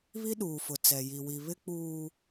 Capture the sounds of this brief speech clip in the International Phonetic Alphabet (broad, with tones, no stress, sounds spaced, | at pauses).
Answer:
β i˦ ɗ uː˨ f ʊ˨ t͡s ɛ˨ j i˨ w i˨ β ɪ˦ k͡p uː˦